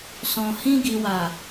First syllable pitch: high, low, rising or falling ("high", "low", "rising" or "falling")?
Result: low